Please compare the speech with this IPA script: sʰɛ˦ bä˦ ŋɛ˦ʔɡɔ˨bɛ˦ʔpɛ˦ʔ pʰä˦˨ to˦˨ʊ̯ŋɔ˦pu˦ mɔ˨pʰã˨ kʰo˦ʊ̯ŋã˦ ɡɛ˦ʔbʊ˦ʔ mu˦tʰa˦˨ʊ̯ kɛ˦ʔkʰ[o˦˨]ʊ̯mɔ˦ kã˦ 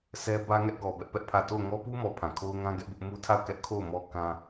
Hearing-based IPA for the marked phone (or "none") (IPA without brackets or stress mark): o˦˨